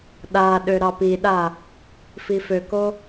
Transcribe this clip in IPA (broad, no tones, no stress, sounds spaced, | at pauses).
ɗ a ɗ ø ɾ ɑ p i ɗ a | f i f ø k o